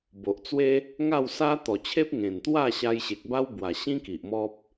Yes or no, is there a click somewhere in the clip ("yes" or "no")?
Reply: no